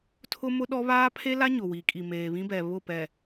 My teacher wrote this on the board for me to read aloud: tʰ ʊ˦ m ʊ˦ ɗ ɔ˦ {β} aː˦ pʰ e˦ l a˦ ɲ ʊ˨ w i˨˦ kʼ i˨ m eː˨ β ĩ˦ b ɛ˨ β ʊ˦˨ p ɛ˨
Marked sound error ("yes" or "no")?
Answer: no